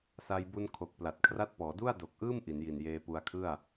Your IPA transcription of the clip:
sa˧jbu˧n kʰo˨˩k̚ pla˨˩t̚kʰra˥˩t̚pɔː˩˦ du˥˩a̯do˨˩k̚ʔɯː˥˩m ʔi˩˦nji˨˩njeː˧ pu˧a̯kʰɯ˥˩a̯

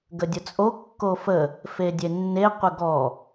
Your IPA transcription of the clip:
ɡədʲʊt͡sʼo kːofə | fedʲenːe qʷəɡɔ

